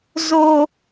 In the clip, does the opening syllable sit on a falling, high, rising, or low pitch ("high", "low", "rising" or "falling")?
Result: low